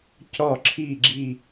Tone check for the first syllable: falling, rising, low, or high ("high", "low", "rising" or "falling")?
falling